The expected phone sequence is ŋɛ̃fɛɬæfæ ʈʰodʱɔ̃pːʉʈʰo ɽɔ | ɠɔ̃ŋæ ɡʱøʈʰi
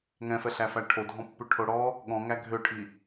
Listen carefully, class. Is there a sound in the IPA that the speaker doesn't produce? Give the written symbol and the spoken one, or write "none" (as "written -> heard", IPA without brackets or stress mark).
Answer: none